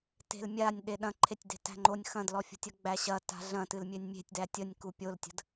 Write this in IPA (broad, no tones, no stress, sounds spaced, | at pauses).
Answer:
t e̤ l mʲ a nʲ ɗ e ɗ ɐ̃ ǃʰ e tʲ d e̤ t æ̤ ŋ͡ǃ o nʲ x ɐ̃ d l ɔ fʲ o̤ tʲ ɐ ɡ͡b æ ɕ ɐ t a̤ ɮ ɐ̃ t ɨ l mʲ ø nʲ mʲ e̤ tʲ d æ tʲ ə nʲ k u pʲ o l tʲ ə̤ d